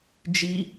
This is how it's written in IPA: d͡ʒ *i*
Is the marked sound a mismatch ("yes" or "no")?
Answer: no